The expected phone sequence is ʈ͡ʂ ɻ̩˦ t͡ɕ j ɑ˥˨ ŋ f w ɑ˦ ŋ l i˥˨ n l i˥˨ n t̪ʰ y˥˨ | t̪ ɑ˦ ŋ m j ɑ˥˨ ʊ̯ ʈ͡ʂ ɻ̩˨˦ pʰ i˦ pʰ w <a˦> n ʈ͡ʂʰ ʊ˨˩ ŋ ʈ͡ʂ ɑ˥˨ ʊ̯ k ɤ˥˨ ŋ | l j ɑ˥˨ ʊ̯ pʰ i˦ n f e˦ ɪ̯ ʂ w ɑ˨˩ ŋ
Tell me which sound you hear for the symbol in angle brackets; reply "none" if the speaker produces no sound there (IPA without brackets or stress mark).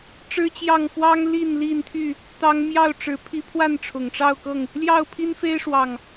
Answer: a˥˨